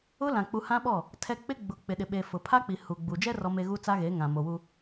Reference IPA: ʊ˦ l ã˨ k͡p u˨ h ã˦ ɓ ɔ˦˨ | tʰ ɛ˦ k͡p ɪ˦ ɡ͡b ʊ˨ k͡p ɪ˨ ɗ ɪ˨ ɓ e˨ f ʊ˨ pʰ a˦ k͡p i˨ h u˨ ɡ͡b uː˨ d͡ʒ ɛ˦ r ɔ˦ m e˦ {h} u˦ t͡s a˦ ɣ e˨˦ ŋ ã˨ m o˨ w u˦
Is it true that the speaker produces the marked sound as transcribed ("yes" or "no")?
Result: no